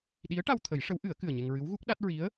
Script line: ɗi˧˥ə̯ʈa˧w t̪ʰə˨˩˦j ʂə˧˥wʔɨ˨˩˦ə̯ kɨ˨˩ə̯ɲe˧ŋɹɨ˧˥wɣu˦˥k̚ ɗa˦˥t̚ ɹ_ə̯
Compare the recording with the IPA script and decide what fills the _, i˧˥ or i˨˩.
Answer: i˧˥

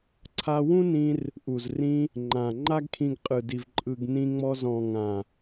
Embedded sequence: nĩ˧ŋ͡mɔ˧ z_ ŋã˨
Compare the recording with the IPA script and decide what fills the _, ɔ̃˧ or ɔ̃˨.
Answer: ɔ̃˨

